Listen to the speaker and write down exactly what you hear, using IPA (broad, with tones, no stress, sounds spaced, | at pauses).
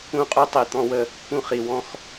ũ˦ qʼ u˦ tˤ i˨ t̪ ɔ̃˦ w ə˦ | k ũ˦ χ i˨ w ɔ̃˦ x